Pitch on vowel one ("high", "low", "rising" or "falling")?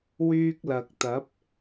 high